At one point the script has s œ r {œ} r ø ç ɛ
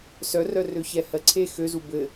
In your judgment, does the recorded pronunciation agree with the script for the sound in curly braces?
yes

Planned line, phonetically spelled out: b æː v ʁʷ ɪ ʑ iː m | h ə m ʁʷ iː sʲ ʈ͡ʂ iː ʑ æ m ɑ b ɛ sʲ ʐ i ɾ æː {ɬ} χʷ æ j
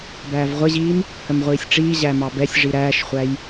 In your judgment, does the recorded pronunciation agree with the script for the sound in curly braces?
no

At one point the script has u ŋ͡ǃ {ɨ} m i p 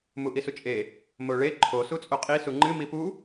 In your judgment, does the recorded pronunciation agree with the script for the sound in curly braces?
yes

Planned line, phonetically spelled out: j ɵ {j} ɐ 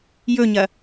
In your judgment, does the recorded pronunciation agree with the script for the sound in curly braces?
no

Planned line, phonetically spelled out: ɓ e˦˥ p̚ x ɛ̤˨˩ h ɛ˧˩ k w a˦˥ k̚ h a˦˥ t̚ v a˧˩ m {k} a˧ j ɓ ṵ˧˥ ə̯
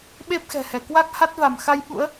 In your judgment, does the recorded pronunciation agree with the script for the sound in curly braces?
no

